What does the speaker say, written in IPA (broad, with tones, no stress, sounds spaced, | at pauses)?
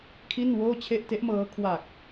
kʰ i˥˩ n w oː˥˩ t͡ɕʰ e˥˩ ʔ t e˦˥ ʔ m ɤː˦˥ kʰ w a˨˩ k̚